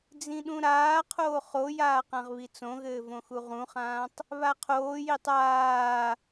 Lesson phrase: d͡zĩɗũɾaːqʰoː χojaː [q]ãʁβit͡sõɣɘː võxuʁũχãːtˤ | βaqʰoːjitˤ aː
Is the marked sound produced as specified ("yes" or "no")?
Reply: yes